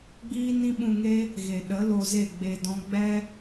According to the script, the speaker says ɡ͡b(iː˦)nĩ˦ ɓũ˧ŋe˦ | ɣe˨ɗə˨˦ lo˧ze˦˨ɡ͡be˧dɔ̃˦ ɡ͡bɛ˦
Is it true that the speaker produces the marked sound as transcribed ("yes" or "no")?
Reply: yes